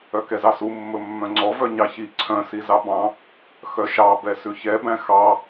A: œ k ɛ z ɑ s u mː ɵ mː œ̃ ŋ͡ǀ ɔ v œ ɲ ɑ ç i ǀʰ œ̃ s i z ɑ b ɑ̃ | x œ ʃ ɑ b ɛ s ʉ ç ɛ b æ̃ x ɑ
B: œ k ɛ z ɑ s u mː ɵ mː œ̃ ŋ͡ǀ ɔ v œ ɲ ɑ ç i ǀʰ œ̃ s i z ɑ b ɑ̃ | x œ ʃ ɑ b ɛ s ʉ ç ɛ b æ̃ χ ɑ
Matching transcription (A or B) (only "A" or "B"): A